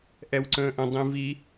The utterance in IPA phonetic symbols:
ʔ ɛ w ǀ ə̃ː ʔ ə̃ dˤ ĩ v i

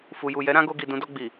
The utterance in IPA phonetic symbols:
f u˨ j u˨ j ɛ˨˦ ɾ ã˦ ɡ o˧ ɡ i˨ d ũ˨˦ d ɔ˧ ɡ͡b i˨

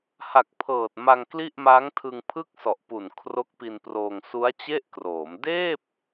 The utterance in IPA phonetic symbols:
h a˨˩ k̚ pʰ ɤː˨˩ t̚ m a˧ ŋ k l i˥˩ ʔ m a˦˥ ŋ tʰ ɯ˧ ŋ pʰ ɯ˥˩ k̚ s ɔ˨˩ ʔ p u˨˩ n kʰ r o˦˥ k̚ p i˧ n p r oː˧ ŋ s u˦˥ a̯ t͡ɕ e˥˩ ʔ k r oː˩˦ m d eː˥˩ p̚

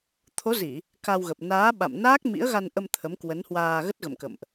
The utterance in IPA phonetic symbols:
t̪ʰ o˨˦ z i˧˩˨ | k a˧ w ɣ ə˨˩ p̚ n aː˨˦ ɓ a̰˧˨ m n aː˦˥ k̚ m ḭ˧˥ ə̯ ɣ a˧ n ʔ ə˧ m t̪ʰ ə˨˦ m k w ə˨˦ n h w aː˧ ɣ ə˦˥ t̚ ɣ ə̰˧˨ m k ə̰˧˨ m ʔ

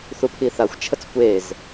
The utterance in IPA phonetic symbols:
θ u pʰ i θ a xʷ t͡ʃʰ ə t͡s kʷ e z

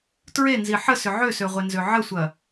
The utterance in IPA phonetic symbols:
t ɹ e n z i ħ ə s ʏ ʕ ø s ø ʁʷ e n z ø ʕ ə sʷ ɐ

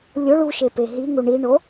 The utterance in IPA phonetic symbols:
lʲ o ɭ u ʃ e p e ɦ i ŋ u ɳ i ɳ o

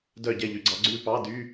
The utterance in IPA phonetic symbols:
d œ˥˨ ɟ ɛ˥˨ ʎ y˨˩˦ ɡ͡ǀ ɑ˨˥ ɡ͡ǀ ʉ˥˨ p ɑ˧˥˧ d y˧˥˧

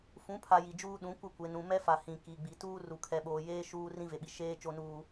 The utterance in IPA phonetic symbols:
f ũ˨˦ pʰ a˨ j i˨ d͡ʒ uː˦ ɗ ũ˨˦ kʷ ɪ˦˨ kʷ e˨ n ũ˨ m ɛ˦ f a˨ h ĩ˨ k i˨ ɡ͡b i˨ t uː˦ r u˨ kʰ ɛ˨ ɓ oː˨ j eː˦ ʃ uː˦ r ĩ˦ v e˨ ɓ i˨ ʃ eː˦ t͡ʃ o˦ n uː˦

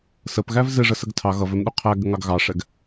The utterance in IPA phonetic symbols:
s ə p ɣ æ v z ɪ ʐ ə s ə ɡ tʰ ɑ ɣ ʌ v ɛ m ɗ u qʰ æ ɡ ə ŋ ɑ ɡ ɣ ɑ ʂ ɛ ɡ

